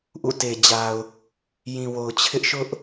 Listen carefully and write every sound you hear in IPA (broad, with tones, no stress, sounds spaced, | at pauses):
ʔ ṵ˦˨ t e˨ d͡ʑ a˨ ʊ̯ | j ĩ˨ w o˨ ʊ̯ t͡ɕʰ ɪ˦ ʔ ʃ ʊ˦ ʔ